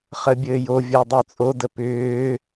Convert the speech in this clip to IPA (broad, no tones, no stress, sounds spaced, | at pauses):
χ ə bʲ ɘː j o vʲ əː dˤ ʏː t͡sʼ o d ə p ʏː